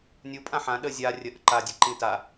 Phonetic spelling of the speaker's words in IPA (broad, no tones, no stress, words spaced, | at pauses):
nʲupʼã ħã ɗə zʲa rʲəʔə ǃadʲəǃĩ ta